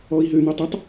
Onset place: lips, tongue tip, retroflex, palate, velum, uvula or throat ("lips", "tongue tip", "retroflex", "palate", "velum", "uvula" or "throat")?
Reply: throat